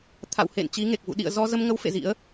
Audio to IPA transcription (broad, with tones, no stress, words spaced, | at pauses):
t̪ʰa̰˧˨whḛ˧˨n t͡ɕi˨˦ŋe˨˩k̚vṵ˧˨ ɗḭ˧˨ə̯ zɔ˧zə˧mŋə˨˦w fḛ˧˨zḭ˧˥ə̯